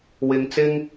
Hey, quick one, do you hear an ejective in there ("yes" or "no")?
no